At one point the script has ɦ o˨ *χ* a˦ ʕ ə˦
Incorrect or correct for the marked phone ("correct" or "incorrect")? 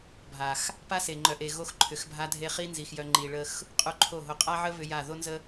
incorrect